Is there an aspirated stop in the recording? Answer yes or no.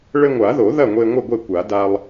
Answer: no